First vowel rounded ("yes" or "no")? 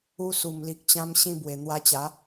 yes